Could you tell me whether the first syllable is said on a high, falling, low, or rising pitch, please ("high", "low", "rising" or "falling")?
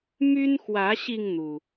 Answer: high